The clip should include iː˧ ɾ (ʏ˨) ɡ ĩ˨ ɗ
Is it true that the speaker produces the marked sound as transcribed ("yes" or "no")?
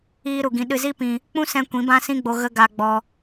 no